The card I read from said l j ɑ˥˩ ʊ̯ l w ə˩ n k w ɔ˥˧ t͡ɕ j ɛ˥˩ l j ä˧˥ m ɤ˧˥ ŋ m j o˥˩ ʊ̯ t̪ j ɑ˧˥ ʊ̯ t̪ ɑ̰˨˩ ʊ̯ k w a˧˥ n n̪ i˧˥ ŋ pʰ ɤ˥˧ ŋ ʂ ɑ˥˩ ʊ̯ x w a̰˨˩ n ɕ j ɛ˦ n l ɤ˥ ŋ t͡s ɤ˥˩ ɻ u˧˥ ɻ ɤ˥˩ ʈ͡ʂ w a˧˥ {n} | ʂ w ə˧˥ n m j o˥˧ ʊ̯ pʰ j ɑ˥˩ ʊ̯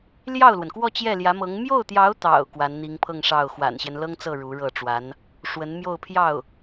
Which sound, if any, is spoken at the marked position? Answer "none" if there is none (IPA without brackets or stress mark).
n